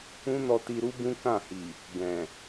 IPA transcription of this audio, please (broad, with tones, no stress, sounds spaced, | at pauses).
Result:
ũ˦ n ɔ˧ t i˧ ɾ u˦ b ũ˦ k ã˦˨ h i˨ | ɡ ɛ̃˨